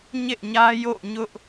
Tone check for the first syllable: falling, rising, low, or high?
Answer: falling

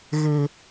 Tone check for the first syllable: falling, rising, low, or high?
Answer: low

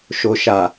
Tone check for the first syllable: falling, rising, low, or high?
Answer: low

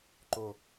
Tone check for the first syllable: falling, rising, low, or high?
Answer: low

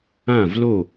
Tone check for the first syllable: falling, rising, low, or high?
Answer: falling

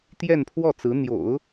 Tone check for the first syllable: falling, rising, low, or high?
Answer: falling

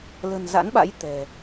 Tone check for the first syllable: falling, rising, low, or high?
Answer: low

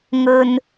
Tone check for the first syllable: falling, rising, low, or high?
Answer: low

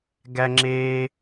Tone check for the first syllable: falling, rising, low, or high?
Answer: high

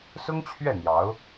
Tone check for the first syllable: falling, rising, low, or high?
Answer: high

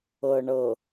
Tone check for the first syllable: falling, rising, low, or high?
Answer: low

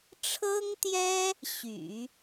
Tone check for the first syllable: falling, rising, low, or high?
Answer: high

